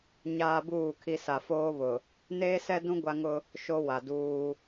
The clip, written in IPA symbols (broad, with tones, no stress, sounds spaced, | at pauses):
ɲ aː˦ b uː˦˨ kʰ i˦ s a˨ f oː˦ β ʊ˨ | n eː˦ s ɛ˦ d ũ˦ ɡʷ a˦ ŋ ʊ˦ | ʃ o˦ w a˨ d uː˦